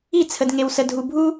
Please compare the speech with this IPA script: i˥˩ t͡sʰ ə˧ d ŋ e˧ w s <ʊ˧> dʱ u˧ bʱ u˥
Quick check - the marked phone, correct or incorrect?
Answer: incorrect